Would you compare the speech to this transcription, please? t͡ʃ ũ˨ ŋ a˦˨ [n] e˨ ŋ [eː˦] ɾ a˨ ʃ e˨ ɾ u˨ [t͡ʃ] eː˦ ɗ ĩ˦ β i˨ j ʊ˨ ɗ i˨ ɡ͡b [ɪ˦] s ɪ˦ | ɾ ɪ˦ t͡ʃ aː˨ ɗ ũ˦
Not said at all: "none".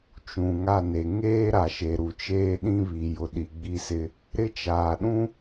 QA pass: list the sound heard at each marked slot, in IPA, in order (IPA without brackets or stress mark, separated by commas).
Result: n, eː˦, t͡ʃ, i˦